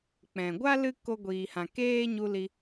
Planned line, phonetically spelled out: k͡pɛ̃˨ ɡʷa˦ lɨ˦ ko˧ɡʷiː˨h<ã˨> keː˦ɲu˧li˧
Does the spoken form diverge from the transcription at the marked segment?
no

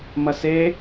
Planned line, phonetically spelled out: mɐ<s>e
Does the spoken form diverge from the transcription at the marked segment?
no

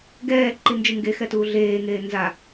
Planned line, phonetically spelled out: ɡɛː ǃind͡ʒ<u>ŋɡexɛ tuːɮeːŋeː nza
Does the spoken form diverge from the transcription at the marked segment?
yes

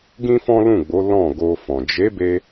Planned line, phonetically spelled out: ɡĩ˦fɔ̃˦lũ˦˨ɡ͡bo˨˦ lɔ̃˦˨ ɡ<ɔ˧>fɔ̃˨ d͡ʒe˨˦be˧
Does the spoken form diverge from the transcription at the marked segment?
yes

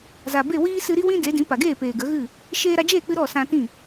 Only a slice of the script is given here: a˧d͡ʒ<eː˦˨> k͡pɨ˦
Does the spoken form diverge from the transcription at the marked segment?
no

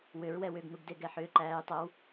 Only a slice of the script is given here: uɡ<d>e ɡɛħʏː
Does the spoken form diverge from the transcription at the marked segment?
no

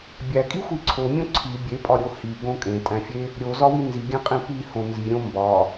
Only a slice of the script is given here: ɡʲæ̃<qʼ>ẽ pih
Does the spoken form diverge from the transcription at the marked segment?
no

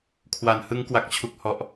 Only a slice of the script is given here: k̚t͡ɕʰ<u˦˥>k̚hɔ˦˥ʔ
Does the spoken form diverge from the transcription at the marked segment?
no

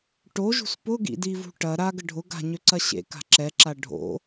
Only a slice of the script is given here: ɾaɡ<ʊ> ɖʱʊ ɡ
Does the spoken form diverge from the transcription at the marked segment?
yes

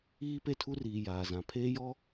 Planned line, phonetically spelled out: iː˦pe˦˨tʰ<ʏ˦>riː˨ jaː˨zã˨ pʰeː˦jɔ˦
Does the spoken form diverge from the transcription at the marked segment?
yes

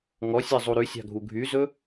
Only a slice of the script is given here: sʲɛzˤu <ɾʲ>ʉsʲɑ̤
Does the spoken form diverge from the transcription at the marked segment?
yes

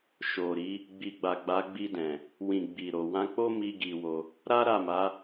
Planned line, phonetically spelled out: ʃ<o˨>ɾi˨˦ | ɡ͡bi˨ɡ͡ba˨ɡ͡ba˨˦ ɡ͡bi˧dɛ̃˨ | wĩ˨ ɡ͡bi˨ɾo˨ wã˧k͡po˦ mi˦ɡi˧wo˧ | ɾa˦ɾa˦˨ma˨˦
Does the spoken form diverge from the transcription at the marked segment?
no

